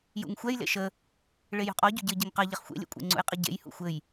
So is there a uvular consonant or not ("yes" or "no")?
yes